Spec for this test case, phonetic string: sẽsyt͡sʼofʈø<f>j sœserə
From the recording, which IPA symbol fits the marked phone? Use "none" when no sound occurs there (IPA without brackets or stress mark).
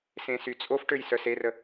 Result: none